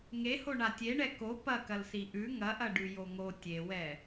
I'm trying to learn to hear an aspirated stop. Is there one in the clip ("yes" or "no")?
no